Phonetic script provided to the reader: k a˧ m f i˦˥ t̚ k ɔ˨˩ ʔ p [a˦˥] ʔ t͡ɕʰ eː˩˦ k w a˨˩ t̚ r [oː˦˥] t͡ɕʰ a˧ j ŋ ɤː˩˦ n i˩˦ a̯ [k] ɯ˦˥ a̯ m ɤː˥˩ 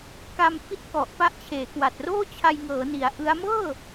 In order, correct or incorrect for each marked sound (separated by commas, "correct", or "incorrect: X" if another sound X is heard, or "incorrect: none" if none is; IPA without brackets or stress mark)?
correct, incorrect: oː˥˩, incorrect: ʔ